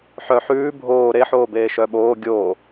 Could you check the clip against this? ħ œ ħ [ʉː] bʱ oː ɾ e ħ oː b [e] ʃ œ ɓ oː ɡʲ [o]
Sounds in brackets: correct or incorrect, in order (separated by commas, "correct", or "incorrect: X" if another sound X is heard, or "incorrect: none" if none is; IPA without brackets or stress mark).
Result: correct, incorrect: eː, incorrect: oː